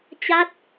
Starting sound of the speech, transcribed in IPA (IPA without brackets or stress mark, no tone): t͡ɕ